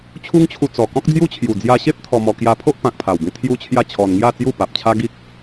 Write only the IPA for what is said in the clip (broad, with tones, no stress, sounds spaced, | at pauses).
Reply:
t͡ɕʰ u˦ ŋ t͡ɕʰ u˧ t͡s ɔ˨˩ k ɔ̃˦ k̚ d͡z j u˦ t͡ɕʰ j u˨˩ d͡z j a˧ ɕ e˦ p̚ t̪ʰ ɔ˧ m ɔ˧ k j a˧ pʰ o˦ ʔ p ã˨ k̚ pʰ a˨˩ w b ĩ˧ t̪ʰ j u˦ t͡ɕʰ j a˥˧ t͡ɕʰ ɔ˧ n ŋ j a˥˧ t͡s j u˥˧ p a˨ p̚ t͡ɕʰ a˦ ɡ i˦ k̚